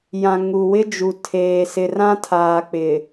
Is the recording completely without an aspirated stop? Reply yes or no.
no